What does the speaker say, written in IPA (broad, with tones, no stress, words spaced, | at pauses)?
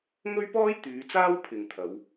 ŋɵ˥ɥpɔː˥j t̪yː˨˧t͡saː˥w pʰɪ˨ŋt̪ʰɐ˨˧w